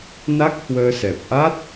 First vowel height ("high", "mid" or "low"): low